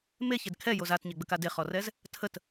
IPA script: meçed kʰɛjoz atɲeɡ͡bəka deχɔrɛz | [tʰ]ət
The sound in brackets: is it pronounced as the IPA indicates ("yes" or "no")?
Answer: yes